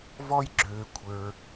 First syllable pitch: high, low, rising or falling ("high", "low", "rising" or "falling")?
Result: high